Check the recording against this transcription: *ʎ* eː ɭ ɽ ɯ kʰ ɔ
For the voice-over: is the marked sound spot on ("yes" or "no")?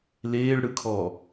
no